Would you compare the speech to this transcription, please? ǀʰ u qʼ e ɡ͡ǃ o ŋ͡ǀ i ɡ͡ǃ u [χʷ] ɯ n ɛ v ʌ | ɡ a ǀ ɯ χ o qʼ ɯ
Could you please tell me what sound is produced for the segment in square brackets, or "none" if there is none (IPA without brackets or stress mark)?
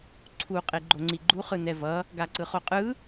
χ